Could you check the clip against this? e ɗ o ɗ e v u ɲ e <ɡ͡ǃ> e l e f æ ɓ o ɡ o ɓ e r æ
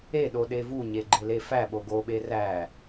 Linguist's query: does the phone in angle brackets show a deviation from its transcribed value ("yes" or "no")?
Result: no